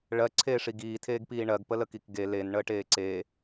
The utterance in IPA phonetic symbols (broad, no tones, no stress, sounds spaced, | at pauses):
ɭ ɜ ǀʰ eː ʂ i ɡ iː tʰ eː ɡ p iː ɳ ɜ ɡ p ə l ə k i k ɡ e l e n ɳ əː ʈ eː ǀ e